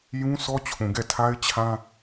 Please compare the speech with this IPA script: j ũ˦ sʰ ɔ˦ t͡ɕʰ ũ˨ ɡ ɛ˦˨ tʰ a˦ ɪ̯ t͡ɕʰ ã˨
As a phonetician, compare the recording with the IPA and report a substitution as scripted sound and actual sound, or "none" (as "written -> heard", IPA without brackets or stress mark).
ã˨ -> ã˦